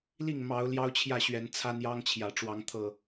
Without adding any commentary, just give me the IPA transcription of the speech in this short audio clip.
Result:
l i˥˨ ŋ m ɑ˨˦ ʊ̯ l j ɑ˦ ʊ̯ t͡ɕʰ j ä˥˨ ɕ ɥ ɛ˨˦ n t͡sʰ a˦ n j ɑ˦ ŋ t͡ɕʰ j ä˨˩ ʈ͡ʂ w ɑ˨˦ ŋ t̪ʰ ɤ˨˩

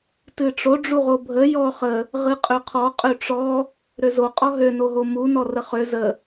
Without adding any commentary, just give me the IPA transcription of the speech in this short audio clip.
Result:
t ɨ ʈ͡ʂ o ɖ͡ʐ u ʁ o bʱ ə j ɔ χ ə | ʁ ɨ qʼ ø qʰ ɔ qʼ ø ʈ͡ʂ ɔ | ɾ ø z o qʼ ɔ ɦ ø n o ɦ o m u n ɔ r ə χ ø z ə

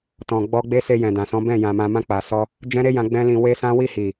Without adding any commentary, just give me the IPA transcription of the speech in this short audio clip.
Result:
t ɔ̃˨ ɡ͡b ɔ˧ ɡ͡b e˦ s e˧ j ɛ̃˨ d ã˨ s ɔ̃˨˦ b ɛ̃˦˨ j ã˨ m ã˨ m ã˧ k͡p a˨ s ɔ˧ | d͡ʒ ɛ̃˦ ɾ e˦ j ã˧ ɡ͡b ɛ̃˦ l ĩ˧ w e˦ s ã˦ w i˦˨ h i˨

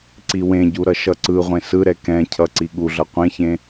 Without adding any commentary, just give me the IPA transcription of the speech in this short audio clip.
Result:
ǀ i w ẽ ɟ u ɾ ʌ ʃ ʌ ǀ ɯ ʁʷ ẽ s ɯ ɾ ɛ k ɛ̃ cʰ ʌ ǀ i ɠ u ɮ ʌ qʷ ẽ ç ẽ

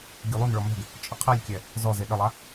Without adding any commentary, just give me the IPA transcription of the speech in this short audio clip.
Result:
ɡʲ u lˠ u n ɭ ɔ m ɛ̤ ɡ | t͡ʃʼ ə qʰ e lʲ kʲ ɛ | z ɔ z e ɗ ə lˠ a

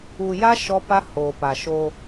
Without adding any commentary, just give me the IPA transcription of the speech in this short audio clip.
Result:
uː˨ j a˦ ʃ ɔ˦ p a˦ h oː˨ p a˨ ʃ oː˦

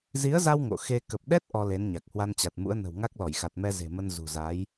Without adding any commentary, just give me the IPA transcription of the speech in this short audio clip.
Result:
z i˨˦ ə̯ z a˧ w ŋ o̰˧˨ x e˧ k ə˨˩ p̚ ɗ ɛ˦˥ t̚ ʔ ɔ˧ l e˨˦ n ɲ a˨˩ k̚ h w a˧ n t͡ɕ a˨˩ t̚ m ṵ˧˥ ə̯ n ə̤˨˩ w ŋ a˦˥ k̚ l ɔ˧˩ j x a˨˩ t̚ m ɛ˧ z e̤˨˩ m ə˧ n z ṳ˨˩ z a˨˦ j

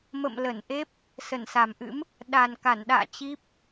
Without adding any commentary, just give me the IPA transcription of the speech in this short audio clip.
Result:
m ə̰˧˨ m l ə˧˩ n ʔ e˦˥ p̚ | s ə˧˩ n s a˨˩ m ʔ ɨ̰˧˥ m | ɗ a˨˩ n k a˧˩ n ɗ a̰ː˧˨ t͡ɕ i˦˥ p̚

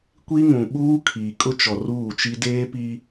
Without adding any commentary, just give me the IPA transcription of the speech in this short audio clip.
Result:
kʷ i˦ ŋ ũ˨ ɓ uː˦ kʰ iː˨ kʼ ʊ˦ t͡ʃ ɔ˨ r uː˦˨ t͡ʃ i˦ d eː˦ p i˦

